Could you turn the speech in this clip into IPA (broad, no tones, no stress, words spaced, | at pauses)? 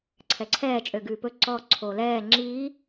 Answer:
ǀʰɛǀʰɛː t͡ʃʼøɡʉːpɵ ǀɔ ǀʰoːlɛː ŋ͡ǁiː